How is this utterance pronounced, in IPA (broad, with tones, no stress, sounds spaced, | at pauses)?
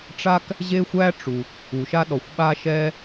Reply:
ʈ͡ʂ a˥ k | ʑ e˥ xʷ æ˥ ʈ͡ʂ u˩ | u˩ ʃ a˥ ɗ ɔ˩ xʷ ɓ a˥ ʃ ɛ˥